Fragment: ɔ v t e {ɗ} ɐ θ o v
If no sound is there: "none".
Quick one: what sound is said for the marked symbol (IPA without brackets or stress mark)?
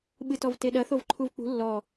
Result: ɗ